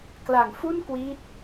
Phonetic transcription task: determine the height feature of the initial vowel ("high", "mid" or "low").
low